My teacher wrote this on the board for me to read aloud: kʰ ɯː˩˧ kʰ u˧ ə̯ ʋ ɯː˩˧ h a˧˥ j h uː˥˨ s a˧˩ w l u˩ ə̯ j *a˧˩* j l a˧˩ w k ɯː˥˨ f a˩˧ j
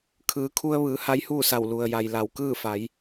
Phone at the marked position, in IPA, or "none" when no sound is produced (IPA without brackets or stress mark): a˩